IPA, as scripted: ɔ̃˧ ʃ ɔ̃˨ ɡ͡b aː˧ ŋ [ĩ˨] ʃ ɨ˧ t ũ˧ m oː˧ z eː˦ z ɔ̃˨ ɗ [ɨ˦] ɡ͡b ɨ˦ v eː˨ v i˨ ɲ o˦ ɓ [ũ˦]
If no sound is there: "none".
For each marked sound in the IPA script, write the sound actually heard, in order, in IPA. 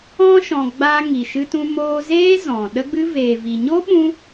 i˨, ə˦, ũ˧

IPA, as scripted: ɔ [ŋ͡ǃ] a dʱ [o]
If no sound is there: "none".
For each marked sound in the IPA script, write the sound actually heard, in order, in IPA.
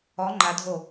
ŋ͡ǃ, o

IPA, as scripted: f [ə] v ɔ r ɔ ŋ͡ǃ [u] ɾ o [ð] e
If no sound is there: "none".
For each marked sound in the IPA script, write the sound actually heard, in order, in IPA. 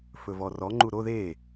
ɵ, u, ð

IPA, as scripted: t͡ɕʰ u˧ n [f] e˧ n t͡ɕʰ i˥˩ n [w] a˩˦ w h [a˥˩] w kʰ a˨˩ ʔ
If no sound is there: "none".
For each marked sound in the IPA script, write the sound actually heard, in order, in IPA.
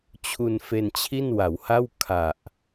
f, w, a˥˩

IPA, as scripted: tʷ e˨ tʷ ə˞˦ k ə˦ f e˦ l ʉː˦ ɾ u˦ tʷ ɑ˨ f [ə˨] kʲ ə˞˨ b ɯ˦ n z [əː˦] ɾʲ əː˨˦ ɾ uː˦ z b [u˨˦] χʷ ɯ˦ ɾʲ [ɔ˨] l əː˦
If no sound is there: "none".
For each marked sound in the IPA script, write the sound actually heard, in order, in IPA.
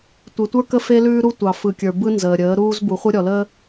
ɯ˨, əː˨, u˨˦, ɔ˨

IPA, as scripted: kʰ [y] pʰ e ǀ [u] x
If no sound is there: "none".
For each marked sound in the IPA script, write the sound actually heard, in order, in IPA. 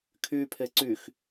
y, y

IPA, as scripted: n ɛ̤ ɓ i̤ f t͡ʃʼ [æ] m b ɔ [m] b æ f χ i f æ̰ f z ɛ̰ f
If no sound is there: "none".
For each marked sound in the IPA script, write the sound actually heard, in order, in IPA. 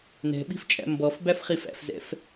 æ̰, f

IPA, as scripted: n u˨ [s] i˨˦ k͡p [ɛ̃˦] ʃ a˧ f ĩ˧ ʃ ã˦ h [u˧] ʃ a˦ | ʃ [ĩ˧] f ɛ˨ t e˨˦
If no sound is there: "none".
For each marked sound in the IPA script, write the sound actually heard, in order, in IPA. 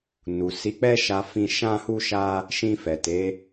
s, ɛ˦, u˦, ĩ˧

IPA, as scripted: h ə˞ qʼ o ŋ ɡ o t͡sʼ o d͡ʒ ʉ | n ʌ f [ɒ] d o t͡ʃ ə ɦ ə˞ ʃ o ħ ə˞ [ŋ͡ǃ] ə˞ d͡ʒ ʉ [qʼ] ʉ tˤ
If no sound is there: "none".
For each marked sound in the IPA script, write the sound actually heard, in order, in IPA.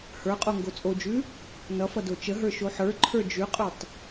ʌ, ǃʰ, qʼ

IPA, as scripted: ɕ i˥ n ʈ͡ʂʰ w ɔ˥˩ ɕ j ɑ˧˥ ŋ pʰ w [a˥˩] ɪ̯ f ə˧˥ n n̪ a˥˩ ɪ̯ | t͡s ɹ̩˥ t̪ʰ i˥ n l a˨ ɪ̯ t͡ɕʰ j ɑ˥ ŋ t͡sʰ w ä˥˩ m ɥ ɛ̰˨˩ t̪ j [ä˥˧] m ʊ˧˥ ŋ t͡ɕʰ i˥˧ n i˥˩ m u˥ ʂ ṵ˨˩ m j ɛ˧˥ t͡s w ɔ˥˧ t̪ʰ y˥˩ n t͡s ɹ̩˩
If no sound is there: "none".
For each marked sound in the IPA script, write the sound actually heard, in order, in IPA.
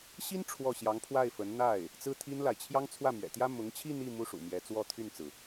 a˥˩, ä˥

